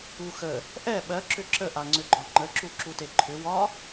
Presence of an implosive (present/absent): present